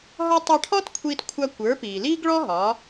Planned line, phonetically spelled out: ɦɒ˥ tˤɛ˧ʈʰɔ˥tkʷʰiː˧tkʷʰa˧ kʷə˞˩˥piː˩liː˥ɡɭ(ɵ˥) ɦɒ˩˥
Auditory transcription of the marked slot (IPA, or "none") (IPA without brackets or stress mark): ɔ˥